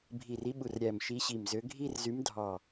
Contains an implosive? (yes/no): yes